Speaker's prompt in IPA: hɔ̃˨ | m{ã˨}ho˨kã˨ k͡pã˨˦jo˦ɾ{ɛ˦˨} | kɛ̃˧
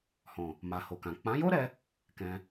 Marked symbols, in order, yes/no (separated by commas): no, no